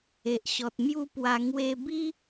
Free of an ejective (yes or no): yes